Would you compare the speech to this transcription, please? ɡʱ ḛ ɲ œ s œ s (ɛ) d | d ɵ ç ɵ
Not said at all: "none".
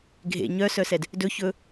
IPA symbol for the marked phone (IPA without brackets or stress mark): ɛ